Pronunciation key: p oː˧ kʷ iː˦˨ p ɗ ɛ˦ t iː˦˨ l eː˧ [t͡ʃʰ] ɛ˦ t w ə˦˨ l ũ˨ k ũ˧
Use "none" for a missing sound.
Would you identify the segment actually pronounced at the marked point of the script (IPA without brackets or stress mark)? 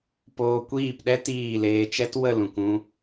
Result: t͡ʃ